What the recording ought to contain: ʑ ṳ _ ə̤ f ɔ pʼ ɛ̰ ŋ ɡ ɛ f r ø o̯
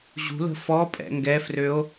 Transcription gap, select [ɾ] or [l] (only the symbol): l